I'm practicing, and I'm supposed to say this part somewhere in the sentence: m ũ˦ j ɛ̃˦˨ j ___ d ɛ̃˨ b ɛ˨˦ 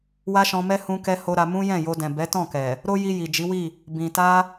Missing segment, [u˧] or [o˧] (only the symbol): o˧